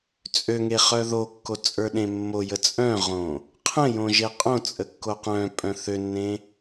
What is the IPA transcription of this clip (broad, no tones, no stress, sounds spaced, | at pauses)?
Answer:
t͡sʼ ø ŋ e χ œ ð o kː o t͡sʼ ə˞ ɗ ẽ mː o j ə t͡sʼ œ̃ ʁ õ | qʰ ə̃ j õ ʒ e qʼ õ t͡sʼ ə kː o q œ̃ pʼ œ̃ θ ø nː ẽ